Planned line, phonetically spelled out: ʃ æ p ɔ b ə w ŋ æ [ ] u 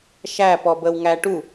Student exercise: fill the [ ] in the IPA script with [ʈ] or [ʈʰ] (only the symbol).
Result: ʈ